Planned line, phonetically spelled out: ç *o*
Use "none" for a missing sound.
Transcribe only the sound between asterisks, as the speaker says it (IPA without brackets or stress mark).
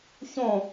õ